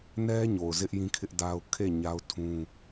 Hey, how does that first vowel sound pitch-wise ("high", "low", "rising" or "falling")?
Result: high